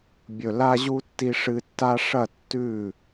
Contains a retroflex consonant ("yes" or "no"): yes